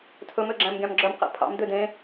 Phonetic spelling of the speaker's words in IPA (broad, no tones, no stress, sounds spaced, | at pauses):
tʰ ɵ m ø ɡ͡ǁ æ̃ m ɡʲ ɑ̃ m ɡ͡ǁ œ m q ɛ̰ pʰ ɑ̰ m d̪ ø d ẽ